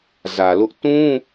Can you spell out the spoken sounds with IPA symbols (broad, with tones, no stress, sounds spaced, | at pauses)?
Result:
z ä˨ l ʊ˦ ʔ t ũ˦